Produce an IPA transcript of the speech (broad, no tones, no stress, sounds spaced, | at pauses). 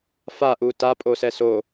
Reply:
f a ʔ u t a pʼ o s ɛ s o